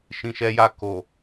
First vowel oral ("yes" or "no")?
no